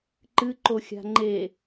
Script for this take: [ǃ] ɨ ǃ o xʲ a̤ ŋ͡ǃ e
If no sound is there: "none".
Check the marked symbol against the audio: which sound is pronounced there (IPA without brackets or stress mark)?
ǃ